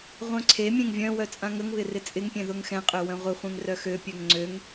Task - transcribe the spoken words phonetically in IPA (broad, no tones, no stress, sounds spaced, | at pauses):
ʁʷ œ̃ ǀʰ e mʲ ẽ ŋ vʲ œ̃ w œ t͡sʼ ã ŋ ə ŋ β ɪ r ɪ t͡sʼ ɪ ŋ pʲ ẽ ð ʊ ŋ x ɛ̃ qʼ ø w œ̃ ʁʷ ə χʷ ẽ ŋ r œ x ø pʲ ø ŋ ŋ͡ǀ ø ŋ